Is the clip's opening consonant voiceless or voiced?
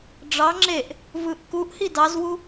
voiced